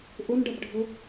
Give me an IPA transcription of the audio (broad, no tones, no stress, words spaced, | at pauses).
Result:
ʔʊnɖʌbɖʱʊ